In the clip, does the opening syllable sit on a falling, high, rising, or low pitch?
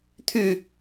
falling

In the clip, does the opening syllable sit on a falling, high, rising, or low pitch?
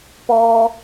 high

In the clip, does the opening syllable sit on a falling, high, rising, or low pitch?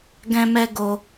high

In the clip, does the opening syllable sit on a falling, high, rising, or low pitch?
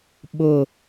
low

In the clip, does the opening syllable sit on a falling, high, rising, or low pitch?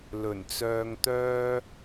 low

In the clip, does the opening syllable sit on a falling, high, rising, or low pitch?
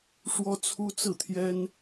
high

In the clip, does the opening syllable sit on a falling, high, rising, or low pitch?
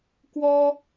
high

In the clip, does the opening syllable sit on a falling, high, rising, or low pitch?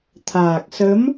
low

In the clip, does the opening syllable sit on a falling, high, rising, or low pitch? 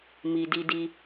low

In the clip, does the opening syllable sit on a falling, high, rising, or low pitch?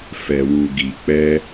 low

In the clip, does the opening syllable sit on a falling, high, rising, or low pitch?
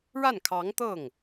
falling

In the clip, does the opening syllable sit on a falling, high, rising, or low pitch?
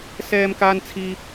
high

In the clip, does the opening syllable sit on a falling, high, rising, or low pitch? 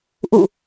falling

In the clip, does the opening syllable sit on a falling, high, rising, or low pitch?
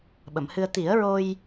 low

